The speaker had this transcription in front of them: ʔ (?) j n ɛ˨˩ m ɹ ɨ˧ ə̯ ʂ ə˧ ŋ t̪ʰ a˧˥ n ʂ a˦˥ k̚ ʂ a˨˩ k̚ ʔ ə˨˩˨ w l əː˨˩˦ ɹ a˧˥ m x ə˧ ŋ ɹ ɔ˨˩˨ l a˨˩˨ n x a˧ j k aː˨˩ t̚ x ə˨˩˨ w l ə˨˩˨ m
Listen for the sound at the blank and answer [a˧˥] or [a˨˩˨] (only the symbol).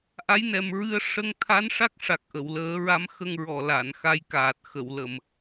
a˧˥